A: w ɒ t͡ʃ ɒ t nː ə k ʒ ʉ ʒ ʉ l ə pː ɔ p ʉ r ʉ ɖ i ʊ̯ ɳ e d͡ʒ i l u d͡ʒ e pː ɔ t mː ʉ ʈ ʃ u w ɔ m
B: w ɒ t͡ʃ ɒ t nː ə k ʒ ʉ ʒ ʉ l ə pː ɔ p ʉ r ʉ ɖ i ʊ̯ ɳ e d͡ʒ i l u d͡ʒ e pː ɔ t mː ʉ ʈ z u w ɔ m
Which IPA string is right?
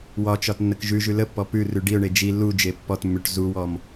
B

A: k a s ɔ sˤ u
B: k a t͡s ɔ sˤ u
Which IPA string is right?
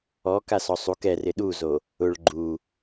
A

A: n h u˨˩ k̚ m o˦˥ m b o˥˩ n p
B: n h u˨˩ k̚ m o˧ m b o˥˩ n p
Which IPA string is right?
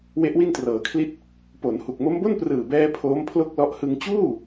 A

